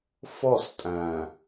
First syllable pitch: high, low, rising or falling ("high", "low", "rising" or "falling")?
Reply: falling